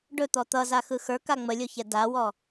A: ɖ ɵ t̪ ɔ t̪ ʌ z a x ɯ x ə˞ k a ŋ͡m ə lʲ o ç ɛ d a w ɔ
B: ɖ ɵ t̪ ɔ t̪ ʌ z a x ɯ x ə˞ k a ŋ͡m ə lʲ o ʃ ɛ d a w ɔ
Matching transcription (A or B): A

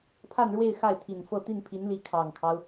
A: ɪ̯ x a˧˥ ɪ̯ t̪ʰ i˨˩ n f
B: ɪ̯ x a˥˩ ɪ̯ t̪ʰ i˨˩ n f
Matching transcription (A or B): B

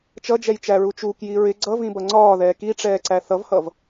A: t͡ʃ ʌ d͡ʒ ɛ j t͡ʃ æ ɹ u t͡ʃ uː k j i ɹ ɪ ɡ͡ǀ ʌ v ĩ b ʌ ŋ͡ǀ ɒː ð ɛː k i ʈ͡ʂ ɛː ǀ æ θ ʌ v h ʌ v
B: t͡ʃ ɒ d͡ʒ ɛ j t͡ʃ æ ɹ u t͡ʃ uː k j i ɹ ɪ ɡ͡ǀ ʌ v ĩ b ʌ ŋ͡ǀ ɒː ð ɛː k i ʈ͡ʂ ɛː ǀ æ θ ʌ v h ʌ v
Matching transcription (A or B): A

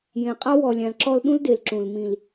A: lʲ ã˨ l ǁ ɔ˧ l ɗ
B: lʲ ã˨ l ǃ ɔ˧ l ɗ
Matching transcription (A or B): A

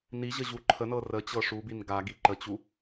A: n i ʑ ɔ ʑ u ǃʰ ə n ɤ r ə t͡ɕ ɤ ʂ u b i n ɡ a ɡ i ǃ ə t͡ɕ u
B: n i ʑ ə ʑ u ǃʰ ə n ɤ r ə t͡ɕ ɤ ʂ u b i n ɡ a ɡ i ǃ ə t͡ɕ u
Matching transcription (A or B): B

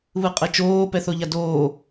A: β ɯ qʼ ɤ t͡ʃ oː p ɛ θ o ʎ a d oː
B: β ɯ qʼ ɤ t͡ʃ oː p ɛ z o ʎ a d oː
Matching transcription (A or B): A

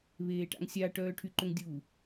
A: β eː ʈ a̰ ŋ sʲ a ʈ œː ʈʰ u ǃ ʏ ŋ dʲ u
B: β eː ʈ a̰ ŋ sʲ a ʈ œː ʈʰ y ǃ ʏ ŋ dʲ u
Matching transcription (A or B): B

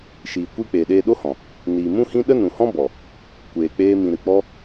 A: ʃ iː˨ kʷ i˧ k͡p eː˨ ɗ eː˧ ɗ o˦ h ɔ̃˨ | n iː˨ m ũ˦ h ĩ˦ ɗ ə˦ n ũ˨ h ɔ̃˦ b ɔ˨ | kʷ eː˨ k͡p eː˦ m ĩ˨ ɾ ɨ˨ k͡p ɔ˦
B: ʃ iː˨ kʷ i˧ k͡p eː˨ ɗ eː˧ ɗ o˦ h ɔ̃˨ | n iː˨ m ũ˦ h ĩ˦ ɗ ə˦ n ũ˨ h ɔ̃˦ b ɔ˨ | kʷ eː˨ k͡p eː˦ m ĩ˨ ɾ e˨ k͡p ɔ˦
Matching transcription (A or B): A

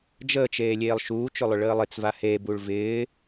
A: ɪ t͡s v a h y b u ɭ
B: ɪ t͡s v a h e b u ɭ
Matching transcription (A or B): B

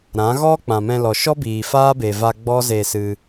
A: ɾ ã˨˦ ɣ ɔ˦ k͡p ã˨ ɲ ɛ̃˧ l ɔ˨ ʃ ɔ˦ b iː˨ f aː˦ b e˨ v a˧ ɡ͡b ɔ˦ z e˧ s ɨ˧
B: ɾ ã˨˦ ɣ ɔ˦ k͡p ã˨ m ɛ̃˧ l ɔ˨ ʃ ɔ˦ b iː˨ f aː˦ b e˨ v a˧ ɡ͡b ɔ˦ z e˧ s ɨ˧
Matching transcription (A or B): B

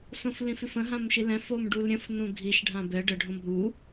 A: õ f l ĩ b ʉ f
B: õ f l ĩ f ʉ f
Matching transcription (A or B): B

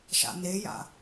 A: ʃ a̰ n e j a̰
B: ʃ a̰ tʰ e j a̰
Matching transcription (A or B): A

